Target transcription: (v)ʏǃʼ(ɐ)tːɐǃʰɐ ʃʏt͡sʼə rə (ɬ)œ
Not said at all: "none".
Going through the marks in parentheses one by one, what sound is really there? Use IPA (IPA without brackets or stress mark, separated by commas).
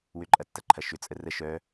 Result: w, ɐ, ʃ